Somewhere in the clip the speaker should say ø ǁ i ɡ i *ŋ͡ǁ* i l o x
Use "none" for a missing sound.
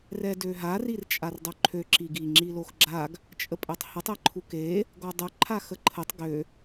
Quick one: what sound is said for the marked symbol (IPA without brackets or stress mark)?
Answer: ŋ͡ǁ